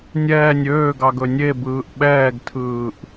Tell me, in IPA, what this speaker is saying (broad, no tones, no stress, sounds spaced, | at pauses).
nʲ ɛː nʲ øː ɡ ɑ ɡ ɵ nʲ e b ɯː ʔ ɓ ɛː ɡ tʰ ɯː ʔ